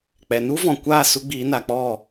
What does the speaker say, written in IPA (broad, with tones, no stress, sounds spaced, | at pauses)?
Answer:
k͡p ɛ˨ n u˦ v ɔ̃˨ kʷ aː˦˨ s u˦ ɡ͡b iː˨˦ n a˨ k͡p ɔ˦˨